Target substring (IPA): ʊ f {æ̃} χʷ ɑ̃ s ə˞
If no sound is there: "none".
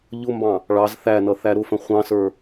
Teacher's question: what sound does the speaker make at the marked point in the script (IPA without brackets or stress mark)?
ə̃